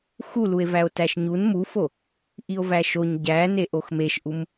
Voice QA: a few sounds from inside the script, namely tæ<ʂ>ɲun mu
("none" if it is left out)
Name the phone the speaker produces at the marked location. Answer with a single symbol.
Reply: ʃ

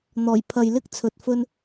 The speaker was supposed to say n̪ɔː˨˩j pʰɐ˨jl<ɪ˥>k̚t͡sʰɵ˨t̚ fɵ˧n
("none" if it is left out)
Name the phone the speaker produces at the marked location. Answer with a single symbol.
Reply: ɪ˥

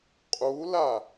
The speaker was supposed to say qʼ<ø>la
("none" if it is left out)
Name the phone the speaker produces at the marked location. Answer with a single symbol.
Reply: u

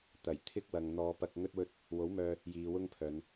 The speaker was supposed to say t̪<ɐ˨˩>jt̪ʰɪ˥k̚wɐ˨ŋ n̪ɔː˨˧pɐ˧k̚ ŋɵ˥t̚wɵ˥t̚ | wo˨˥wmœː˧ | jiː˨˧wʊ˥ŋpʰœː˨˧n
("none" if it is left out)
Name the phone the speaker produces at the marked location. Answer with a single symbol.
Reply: ɐ˨˩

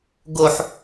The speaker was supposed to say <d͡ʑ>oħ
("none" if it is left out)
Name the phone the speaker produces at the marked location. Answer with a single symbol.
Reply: ɡ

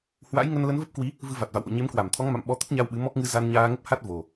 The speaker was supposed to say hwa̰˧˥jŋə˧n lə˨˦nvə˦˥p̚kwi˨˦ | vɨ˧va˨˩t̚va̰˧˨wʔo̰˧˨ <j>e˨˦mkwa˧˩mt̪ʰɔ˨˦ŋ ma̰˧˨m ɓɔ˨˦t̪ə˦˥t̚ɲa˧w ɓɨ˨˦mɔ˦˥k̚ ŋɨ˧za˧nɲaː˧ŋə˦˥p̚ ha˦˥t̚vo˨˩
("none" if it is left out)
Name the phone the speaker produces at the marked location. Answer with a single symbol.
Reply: ɲ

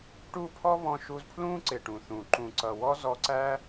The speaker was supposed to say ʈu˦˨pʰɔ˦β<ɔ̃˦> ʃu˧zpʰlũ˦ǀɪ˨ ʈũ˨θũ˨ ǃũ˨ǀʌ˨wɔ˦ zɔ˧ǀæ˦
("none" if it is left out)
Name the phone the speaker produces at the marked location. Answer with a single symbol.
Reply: ɔ̃˧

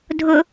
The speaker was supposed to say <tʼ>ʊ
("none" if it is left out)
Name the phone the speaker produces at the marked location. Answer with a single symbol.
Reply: dʱ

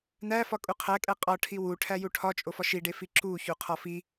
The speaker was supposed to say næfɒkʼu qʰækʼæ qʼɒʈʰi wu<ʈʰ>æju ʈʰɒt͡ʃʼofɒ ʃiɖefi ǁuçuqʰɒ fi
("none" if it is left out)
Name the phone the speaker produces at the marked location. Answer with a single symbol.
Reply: ʈʰ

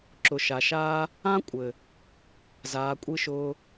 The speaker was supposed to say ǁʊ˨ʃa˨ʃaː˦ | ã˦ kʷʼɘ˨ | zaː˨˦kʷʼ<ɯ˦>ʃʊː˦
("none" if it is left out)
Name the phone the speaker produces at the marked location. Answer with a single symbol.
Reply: ɯ˦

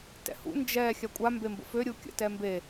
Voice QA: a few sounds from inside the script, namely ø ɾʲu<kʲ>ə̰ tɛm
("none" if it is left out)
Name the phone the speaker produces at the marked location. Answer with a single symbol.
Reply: kʲ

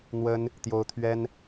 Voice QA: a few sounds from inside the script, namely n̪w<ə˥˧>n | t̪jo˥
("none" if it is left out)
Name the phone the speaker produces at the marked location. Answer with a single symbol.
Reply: ə˥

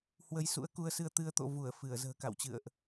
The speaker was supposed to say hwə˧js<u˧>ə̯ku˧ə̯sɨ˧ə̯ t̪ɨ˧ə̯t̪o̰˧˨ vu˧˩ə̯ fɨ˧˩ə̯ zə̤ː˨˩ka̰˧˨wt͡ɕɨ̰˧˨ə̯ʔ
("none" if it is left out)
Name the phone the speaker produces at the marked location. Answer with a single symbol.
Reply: ṵ˧˥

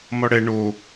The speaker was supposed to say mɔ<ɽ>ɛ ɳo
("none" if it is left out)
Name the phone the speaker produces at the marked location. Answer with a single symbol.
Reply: ɽ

